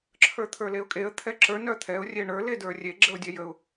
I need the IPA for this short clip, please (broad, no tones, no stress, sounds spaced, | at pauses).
ǁʰ ə˞ t̪ʰ ə˞ l e ʊ̯ kʼ e ə̯ t̪ʰ ɛ ǁ ə˞ n œ t̪ʰ ɛ ʊ̯ rʲ e ɳ ə˞ l e d ə˞ rʲ e ɡ͡ǁ ə ʊ̯ dʲ ɛ j ə ʊ̯